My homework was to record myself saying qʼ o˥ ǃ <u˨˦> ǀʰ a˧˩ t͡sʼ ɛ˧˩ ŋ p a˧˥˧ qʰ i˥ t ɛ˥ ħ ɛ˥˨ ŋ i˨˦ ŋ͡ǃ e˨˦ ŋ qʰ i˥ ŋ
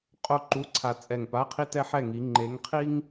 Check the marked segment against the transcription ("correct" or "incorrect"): incorrect